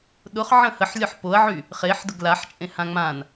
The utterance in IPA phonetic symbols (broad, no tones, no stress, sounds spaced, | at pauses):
ɗ ʊ χ ʕ ə̃ h ə ħ lʲ ɒ ħ p o ɐ̯ ʕ y | χ e ħ d ʊ ɡ l a ħ t͡ʃʼ ẽ h ã ŋ͡m ã n